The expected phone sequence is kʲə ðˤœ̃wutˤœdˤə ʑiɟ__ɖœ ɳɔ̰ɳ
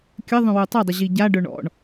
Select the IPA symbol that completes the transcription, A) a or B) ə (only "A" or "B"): A